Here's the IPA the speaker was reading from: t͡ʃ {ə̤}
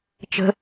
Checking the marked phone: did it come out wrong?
no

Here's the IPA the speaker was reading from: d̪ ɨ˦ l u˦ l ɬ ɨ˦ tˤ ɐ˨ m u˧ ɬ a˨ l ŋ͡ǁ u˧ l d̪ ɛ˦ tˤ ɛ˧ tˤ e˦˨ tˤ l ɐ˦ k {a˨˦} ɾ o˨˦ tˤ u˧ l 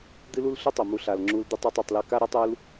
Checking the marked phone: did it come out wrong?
yes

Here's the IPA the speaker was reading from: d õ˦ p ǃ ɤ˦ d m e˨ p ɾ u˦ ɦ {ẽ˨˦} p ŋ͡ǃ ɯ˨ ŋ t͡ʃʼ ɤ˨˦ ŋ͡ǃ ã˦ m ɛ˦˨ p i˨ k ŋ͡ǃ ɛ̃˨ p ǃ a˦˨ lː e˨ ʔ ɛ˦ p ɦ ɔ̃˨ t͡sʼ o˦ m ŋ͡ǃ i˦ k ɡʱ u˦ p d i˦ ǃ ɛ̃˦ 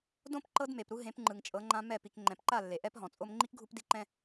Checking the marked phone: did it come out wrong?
no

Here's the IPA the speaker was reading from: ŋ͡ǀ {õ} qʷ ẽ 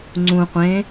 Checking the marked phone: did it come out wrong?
yes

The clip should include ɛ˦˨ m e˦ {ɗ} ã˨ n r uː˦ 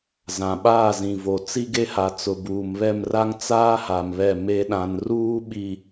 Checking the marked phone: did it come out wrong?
no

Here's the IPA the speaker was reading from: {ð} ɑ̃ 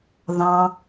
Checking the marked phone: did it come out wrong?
no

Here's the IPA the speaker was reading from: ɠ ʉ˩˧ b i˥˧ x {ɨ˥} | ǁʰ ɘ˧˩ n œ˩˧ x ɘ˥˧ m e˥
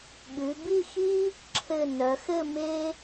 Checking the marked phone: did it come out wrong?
yes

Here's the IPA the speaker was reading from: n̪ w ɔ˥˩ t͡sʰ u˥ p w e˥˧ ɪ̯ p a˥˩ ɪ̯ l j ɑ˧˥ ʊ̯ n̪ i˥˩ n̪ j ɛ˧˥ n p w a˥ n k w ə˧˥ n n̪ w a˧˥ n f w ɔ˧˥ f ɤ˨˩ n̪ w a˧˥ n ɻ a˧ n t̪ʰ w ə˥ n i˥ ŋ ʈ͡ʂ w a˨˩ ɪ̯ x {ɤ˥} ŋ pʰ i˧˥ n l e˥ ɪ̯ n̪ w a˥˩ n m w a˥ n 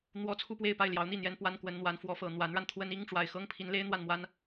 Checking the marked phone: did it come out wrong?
no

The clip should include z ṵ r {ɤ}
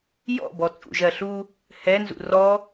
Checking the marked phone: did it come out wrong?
yes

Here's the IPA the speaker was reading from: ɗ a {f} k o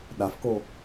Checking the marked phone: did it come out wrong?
no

